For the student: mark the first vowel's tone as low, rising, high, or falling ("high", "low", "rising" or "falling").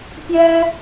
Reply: high